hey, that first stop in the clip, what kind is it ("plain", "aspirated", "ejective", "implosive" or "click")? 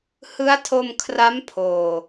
aspirated